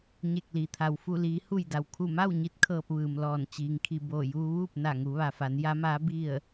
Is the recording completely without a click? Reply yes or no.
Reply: yes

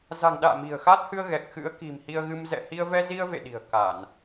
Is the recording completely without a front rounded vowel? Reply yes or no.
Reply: yes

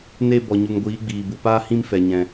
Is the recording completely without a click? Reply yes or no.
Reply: yes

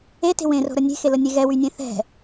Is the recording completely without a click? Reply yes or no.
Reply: yes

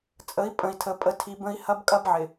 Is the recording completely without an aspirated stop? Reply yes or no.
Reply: no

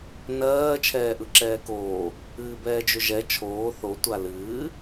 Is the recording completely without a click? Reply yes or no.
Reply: no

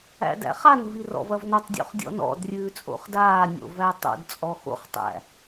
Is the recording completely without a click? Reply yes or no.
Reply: yes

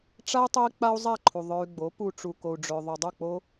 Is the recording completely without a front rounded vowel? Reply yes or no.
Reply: no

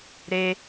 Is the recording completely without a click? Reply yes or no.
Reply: yes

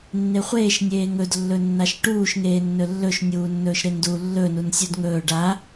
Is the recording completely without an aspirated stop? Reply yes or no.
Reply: yes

